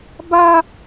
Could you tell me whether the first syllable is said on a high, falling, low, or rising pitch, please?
high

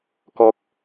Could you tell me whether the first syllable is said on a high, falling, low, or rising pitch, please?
low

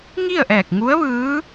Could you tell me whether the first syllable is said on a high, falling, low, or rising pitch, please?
falling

